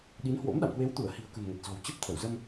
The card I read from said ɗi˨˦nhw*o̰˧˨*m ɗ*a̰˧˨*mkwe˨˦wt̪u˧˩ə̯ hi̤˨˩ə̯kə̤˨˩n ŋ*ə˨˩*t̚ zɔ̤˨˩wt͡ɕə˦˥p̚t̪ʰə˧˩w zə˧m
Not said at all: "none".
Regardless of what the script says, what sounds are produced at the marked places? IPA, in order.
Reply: o̰˧˥, a̰˧˨, ə˨˩

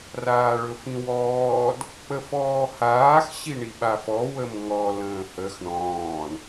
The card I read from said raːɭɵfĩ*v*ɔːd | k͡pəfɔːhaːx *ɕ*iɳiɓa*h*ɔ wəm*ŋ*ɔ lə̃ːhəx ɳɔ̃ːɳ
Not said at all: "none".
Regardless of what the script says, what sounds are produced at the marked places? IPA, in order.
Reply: w, ɕ, f, ŋ

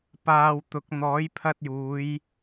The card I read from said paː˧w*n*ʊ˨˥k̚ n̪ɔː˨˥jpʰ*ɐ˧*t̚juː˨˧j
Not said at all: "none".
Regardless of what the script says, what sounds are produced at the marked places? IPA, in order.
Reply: t̪, ɐ˧

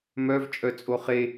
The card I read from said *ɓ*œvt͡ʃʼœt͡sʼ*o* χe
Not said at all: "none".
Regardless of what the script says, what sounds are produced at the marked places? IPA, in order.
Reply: m, o

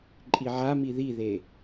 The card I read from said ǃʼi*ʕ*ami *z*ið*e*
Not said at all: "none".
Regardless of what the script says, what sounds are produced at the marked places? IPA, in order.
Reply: ʕ, ð, e

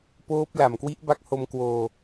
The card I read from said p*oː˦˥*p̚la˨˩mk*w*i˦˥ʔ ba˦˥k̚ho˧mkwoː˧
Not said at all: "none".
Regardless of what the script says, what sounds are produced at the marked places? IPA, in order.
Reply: oː˦˥, w

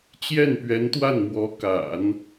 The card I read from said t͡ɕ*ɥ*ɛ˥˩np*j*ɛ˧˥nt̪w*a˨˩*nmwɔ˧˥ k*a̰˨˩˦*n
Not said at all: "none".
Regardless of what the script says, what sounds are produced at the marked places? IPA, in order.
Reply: j, ɥ, a˥˩, a̰˨˩˦

